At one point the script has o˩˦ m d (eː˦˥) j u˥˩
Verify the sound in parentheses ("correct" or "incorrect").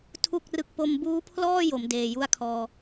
incorrect